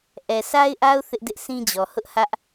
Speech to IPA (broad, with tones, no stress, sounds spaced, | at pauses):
ʔ ɛ˨ sʰ a˦ ɪ̯ ʔ a˦ ʊ̯ θ ɪ˦ ʔ d ɪ˦ ʔ sʰ ĩ˦ d͡ʑ ɔ˨ h ʊ˦ ʔ h ä˦ ʔ